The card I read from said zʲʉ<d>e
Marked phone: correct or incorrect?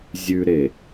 incorrect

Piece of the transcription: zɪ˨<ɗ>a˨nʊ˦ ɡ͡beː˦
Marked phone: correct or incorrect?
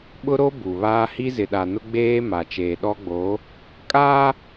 correct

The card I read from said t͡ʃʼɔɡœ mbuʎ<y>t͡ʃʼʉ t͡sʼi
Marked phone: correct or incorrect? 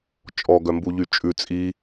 correct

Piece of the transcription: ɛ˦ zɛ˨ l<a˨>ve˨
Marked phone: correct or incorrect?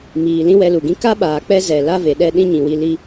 incorrect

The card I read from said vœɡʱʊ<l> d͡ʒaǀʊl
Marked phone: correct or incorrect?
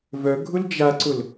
correct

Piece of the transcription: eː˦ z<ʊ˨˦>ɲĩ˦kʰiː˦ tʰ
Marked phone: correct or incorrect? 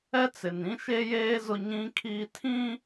incorrect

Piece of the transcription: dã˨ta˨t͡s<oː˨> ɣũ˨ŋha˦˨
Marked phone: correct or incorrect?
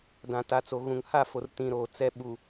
incorrect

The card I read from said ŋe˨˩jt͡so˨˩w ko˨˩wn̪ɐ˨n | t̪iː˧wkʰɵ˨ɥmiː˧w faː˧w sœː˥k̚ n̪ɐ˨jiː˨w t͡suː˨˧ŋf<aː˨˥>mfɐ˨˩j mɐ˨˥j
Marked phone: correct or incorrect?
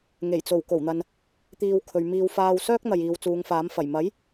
correct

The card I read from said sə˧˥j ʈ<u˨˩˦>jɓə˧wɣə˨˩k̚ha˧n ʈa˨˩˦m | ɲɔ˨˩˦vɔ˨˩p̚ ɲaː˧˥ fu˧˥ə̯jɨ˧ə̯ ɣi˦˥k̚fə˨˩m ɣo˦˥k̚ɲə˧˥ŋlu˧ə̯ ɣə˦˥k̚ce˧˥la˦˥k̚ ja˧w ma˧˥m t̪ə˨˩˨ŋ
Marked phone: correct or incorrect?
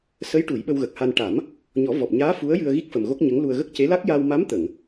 correct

